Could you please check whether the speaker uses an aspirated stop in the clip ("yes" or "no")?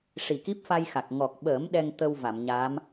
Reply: no